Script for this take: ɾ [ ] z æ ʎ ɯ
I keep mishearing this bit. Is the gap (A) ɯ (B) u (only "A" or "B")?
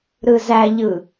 A